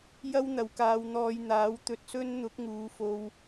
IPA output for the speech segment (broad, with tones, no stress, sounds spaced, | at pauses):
j ɐ˥ w n̪ ɐ˨˧ w k aː˧ w n̪ ɔː˧ j n̪ aː˨˥ w t̪ ɵ˧ t̚ s ɵ˥ n n̪ ʊ˨˥ k̚ ŋ uː˨˧ f o˧ w